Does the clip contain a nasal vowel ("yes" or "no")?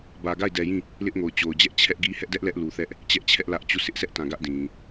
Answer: yes